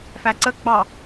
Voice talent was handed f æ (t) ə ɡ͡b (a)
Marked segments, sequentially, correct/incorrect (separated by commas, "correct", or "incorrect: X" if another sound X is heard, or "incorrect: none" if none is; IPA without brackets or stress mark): incorrect: ǀ, incorrect: ɑ